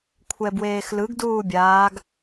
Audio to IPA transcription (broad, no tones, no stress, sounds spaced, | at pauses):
kʷʰ ɛ b w eː x l ɯ ɡ d uː bʲ aː ɡ